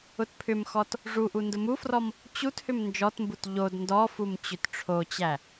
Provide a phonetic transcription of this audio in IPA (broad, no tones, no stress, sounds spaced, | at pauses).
ʊ t pʰ ʏ m x ɔ t | ʐ u ʔ u n d ʊ m u f r ɔ m | t͡ɕ u t h ʏ m n d͡ʒ ɔ t m b u t ʎ o d n d ɔ f u m t͡ɕ ʏ t ʈ͡ʂʰ o t͡ɕ æ